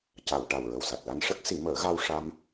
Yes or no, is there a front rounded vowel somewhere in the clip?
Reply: no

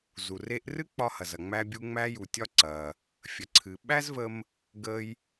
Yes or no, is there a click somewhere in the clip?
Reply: yes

